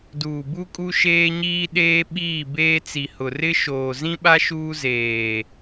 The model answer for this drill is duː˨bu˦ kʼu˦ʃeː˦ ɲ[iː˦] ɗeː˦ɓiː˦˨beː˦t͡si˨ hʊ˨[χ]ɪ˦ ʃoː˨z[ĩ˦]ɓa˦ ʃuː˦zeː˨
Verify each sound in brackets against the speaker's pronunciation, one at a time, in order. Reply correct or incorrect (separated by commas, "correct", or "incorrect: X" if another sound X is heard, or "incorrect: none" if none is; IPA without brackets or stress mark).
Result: correct, incorrect: r, correct